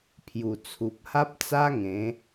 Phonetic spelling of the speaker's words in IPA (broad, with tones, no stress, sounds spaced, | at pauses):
pʰ j u˨˩ t͡sʰ u˨ p̚ h a˦ p̚ t͡s a˦ ŋ ẽ˨˦